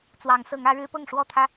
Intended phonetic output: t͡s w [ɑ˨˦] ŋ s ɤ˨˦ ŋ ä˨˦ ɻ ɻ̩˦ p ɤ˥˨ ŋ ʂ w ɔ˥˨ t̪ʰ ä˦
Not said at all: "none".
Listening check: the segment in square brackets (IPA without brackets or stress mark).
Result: ɑ˨˦